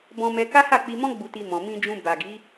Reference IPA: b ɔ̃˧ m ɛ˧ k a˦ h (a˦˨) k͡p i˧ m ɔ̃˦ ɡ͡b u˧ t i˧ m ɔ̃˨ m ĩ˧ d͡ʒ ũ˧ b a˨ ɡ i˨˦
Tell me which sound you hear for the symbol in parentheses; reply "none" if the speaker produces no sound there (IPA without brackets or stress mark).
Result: a˦˨